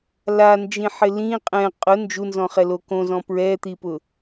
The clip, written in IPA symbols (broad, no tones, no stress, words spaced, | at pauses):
land͡ʒĩħɪ lĩ qʼɛ̃ qʼʊ nd͡ʒunzɔ̃χɛlo kõzɔ̃ pɹɛt̪ipʊ